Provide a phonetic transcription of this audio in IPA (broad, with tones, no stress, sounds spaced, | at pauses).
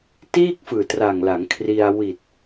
t iː˥˩ k̚ f ɯː˨˩ t r a˨˩ ŋ l a˩˦ ŋ kʰ r i˧ a̯ w i˨˩ t̚